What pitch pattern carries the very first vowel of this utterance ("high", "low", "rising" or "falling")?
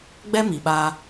high